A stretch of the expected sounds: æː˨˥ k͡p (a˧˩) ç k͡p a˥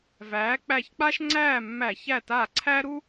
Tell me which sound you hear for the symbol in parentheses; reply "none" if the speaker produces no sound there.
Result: æ˧˩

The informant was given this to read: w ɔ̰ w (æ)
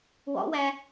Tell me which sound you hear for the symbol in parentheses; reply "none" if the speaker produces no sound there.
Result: æ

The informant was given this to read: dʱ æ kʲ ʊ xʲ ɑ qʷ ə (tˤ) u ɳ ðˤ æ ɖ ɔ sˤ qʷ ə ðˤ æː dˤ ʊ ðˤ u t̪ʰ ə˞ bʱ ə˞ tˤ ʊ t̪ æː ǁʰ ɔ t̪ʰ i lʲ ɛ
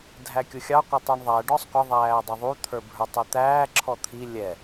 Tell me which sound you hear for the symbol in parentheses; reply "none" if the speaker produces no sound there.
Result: tˤ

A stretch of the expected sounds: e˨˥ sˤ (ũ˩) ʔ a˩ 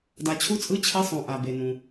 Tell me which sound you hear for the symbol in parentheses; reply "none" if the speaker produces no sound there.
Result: ũ˩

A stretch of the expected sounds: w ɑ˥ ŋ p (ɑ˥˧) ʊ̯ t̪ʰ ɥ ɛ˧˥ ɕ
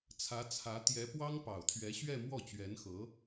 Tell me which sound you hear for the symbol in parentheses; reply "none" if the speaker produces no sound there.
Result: ɑ˨˩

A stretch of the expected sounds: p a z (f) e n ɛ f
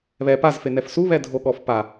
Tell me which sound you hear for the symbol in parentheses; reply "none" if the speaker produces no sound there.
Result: f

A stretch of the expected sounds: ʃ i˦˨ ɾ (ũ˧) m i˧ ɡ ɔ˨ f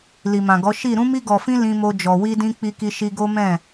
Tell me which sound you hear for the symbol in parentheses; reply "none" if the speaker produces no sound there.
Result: ũ˧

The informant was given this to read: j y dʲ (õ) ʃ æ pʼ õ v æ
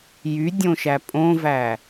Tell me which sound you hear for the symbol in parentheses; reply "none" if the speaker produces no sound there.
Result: õ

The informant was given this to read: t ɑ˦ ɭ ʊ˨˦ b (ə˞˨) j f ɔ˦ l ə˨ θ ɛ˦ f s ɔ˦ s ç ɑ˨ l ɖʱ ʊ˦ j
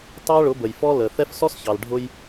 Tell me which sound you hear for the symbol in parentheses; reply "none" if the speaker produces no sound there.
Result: ə˨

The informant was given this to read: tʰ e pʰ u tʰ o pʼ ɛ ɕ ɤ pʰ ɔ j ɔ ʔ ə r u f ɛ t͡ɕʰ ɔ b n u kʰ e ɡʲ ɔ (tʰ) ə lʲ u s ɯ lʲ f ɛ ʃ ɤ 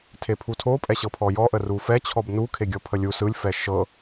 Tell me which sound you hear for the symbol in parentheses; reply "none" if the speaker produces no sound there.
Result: pʰ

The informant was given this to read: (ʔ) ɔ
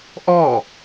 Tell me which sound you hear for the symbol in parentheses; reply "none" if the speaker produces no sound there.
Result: ʔ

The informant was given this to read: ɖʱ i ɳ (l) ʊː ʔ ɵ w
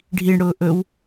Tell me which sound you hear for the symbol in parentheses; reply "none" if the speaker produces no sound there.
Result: ɽ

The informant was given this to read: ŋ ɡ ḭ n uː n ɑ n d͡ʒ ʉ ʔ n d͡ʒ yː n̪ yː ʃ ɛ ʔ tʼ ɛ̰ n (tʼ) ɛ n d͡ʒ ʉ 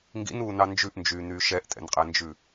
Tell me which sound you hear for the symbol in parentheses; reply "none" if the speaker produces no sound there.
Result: qʼ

